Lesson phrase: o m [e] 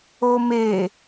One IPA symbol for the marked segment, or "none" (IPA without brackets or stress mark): e